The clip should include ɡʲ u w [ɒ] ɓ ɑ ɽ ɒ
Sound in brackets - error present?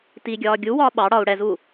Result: yes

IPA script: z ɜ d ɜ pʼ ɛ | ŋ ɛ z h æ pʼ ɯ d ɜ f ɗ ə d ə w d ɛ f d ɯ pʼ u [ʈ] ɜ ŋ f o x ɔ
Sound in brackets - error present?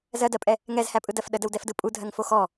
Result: yes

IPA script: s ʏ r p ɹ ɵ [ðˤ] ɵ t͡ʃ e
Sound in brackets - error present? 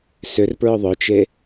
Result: no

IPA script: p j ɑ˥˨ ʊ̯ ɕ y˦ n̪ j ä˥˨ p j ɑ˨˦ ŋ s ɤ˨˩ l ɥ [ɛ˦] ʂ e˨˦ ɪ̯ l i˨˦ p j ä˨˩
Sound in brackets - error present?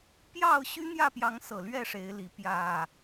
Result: yes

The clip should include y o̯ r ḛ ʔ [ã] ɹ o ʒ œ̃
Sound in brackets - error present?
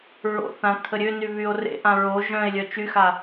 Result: no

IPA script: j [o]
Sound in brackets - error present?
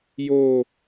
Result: no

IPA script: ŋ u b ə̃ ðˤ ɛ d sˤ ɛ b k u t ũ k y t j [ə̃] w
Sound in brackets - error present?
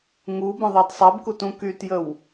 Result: yes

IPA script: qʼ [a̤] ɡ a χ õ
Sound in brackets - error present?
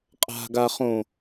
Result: no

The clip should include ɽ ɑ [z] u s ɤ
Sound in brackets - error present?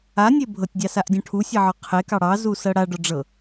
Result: no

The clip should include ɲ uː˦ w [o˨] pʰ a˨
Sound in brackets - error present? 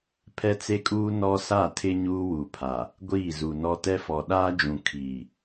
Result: yes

